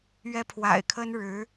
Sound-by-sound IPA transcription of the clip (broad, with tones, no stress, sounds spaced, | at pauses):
ɥ ɛ˥ pʰ w a̰˨˩ ɪ̯ kʰ ə˥ n ɻ ɻ̩˧˥